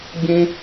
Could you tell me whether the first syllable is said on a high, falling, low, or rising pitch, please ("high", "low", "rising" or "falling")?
high